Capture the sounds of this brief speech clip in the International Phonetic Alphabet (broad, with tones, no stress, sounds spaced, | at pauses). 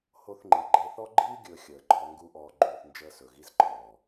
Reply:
h o˧ θ ŋ͡ǃ i˨ ɡ͡ǃ e˧ θ ɔ˦ ɡ͡ǃ iː˦ ɡʲ ɵː˧ xʲ əː˨ ɡ͡ǃ ɔː˧ ŋ ɡ u˧ ʔ ɔː˨ ɡ͡ǃ uː˨ θ n d͡ʒ əː˧ s ɵ˨ ɣ i˧ z ǃʰ ɔː˨